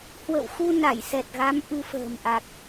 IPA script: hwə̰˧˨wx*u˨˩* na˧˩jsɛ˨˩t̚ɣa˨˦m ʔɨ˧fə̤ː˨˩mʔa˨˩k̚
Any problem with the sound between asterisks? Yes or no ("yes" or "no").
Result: yes